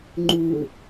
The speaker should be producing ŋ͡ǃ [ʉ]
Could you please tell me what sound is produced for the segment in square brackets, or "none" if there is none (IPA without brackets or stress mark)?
u